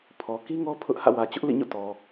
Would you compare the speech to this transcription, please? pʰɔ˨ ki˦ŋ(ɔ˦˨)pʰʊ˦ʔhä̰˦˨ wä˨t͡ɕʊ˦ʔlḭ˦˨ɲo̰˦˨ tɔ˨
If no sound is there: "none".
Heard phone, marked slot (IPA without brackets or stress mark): ɔ˦